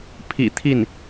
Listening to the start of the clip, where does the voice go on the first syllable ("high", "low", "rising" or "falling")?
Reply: low